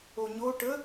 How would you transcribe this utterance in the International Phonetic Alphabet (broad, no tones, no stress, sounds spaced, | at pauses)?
o ɲ o ʈ ə